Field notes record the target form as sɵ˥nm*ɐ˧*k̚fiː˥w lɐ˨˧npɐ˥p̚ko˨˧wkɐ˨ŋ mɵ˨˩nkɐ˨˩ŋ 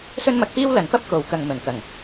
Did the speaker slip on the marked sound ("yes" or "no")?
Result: no